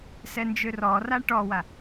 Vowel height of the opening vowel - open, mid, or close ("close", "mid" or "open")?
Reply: mid